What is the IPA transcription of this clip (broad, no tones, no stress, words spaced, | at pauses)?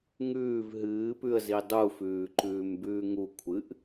ŋʉːv ɦɨːpʉə̯zi dˤufʉː ǃʉːmbʉːŋukʷʰɨʔ